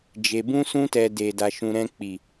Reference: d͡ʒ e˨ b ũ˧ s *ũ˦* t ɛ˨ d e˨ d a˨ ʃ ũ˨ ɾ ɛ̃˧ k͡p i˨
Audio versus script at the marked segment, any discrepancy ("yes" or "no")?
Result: yes